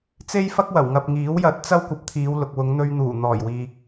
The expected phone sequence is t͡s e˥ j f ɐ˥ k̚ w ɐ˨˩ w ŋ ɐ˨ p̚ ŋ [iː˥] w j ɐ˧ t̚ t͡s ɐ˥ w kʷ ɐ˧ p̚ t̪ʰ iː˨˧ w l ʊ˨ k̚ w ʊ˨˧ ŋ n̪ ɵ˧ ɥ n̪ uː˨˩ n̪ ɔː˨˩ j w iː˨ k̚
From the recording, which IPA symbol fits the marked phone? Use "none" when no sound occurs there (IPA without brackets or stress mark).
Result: iː˨˥